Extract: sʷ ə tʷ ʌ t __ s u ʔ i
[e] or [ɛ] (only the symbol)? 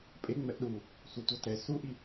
ɛ